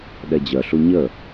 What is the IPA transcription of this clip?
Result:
ɗ ɛ d͡ʑ œ ɬ u ɲ ə

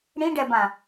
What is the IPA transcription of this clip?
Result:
ɽ ĩ ɖ ɛ b ã

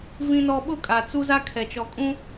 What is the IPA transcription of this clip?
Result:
v ĩ˦ n ɔ˦ ɓ ʊ˦ kʼ a˨ t͡s u˦ z a˦ kʰ ɛ˨ t͡ʃ ɔ˨ kʼ ũ˦

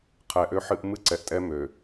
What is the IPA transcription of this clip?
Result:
qʰ ɛ˨ ʔ ø˦ ħ ɨ˦ ʔ m ɨ˦˨ ǀ ɛ˨ ʔ tʼ ɛ˦ m ø˨

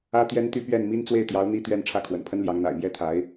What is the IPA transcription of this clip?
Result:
ä˥ t̪ j ɛ˥ n t̪ y˥˧ p ɥ ɛ˥˩ n m i˥ n t͡s w e˥˩ ɪ̯ t̪ j ɑ˧˥ ʊ̯ n̪ i˥ t̪ ɥ ɛ˥˧ n ʈ͡ʂʰ ä˥˩ kʰ w ə̰˨˩ n pʰ ə˥ n l j ɑ˧˥ ŋ n̪ a̰˨˩ ɪ̯ m j ɛ˥ t̪ʰ a˧˥ ɪ̯

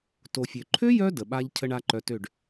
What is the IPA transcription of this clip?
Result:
t o˨ fʲ ø˨ ǃʰ ø˦ j œ˧ d ə˨ ɓ a˦ ʎ cʰ ə˦ ɳ a˦ ǃ œ˧ t ø˦˨ ɖ

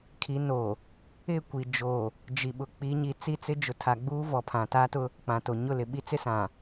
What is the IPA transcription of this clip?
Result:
kʰ i˨˦ n o˨ | ɪ˦˨ kʷ i˨ d͡ʒ o˨ | d͡ʒ i˨ ɓ ʊ˨ k͡p i˨˦ ɲ i˨ t͡s i˦˨ t͡s ɪ˦ d͡ʒ ʊ˨ tʰ a˨ ɡ͡b uː˦ v ɔ˨ pʰ ã˨ t a˦ t ʊ˦ | k͡p ã˨ t o˨ ɲ ʊ˦˨ l ɪ˨ ɓ i˦ t͡s ɪ˦ s ã˨

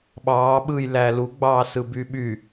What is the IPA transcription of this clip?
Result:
ɓ ɑː ɓ ɯː j l æː l u ɡ͡b ɑː s ɯ b y ɓ y

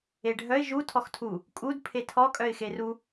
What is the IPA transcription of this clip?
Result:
e ɖʱ œ ɪ̯ ʒ u tʰ ɔ x tʰ u | kʼ u d pʰ e tʰ ɔ kʼ œ ɪ̯ x e r u

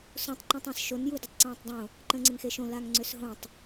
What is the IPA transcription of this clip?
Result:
s õ tˤ ǃ ẽ tˤ ẽ s ʃ o n j u d ə tˤ ǀ ẽː tˤ dˤ õ | ǃ ə̃ː ŋ͡ǀ ɪ ŋ x e ʃ õ l a ŋ ŋ͡ǀ ø s ɦ õ tˤ

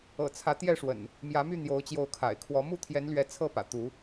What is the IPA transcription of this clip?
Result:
ɤ̰˨˩ t͡sʰ ä˨˦ t̪ j ɛ˥˨ ʂ w ə̰˨˩ n | m j ä˨˦ m y˥˨ n̪ j o˨˦ ʊ̯ t͡ɕ j o˨˦ ʊ̯ kʰ a̰˨˩ ɪ̯ kʰ w ɔ˨˦ m u˥˨ t̪ʰ j ɛ˨˦ n l ɥ ɛ˨˦ t͡sʰ ɤ˥˨ p ä̰˨˩ t̪ u˨˦

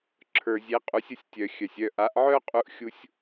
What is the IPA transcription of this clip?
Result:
ǁʰ ə˞˨ zʲ e˨˥ qʼ u˨˥ sʲ ə˥˨ sʲ tʲ œ˨ xʲ œ˨ sʲ œ˥˨ ʔ a˨˥ ʔ ʕ œ˥ qʼ u˥ ʔ xʲ u˥ sʲ

